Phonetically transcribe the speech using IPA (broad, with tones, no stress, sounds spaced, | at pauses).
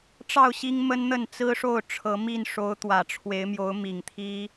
ʈ͡ʂ ɑ˥˨ ʊ̯ ɕ i˦ ŋ m ə˦ n n̪ ə˥˨ n t͡s ɹ̩˦ ʂ o˥˨ ʊ̯ ʈ͡ʂʰ ɤ˨˦ m i˥˨ n ʂ o˨˦ ʊ̯ t̪ w ä˨˩ ʈ͡ʂʰ w e˨˦ ɪ̯ m j o˨˦ ʊ̯ m i˨˩ ŋ t̪ʰ i˦